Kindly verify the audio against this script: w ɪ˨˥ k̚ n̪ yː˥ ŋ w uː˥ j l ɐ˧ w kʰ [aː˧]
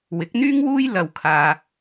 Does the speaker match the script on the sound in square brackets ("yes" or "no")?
yes